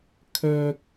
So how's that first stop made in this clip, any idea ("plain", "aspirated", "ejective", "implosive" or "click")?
aspirated